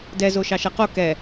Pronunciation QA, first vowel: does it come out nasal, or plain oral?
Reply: oral